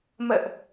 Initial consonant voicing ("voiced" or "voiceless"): voiced